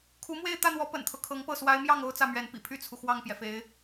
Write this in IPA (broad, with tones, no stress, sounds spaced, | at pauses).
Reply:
kʰ u˧˥ m w e˥˧ ɪ̯ t̪ ä˥˩ n̪ w ɔ˧˥ p ə̰˨˩ n t̪ʰ ɤ˦ kʰ ɤ˧˥ ŋ p ɤ˥˩ s w a˧˥ ɪ̯ m j ɑ˥˩ ŋ o˥ ʊ̯ t͡s ä˥˩ m ɥ ɛ˧˥ n p ḭ˨˩ pʰ y˥˩ t͡sʰ u˩ x w ɑ˥˩ ŋ p j ɛ˩ f e˧˥ ɪ̯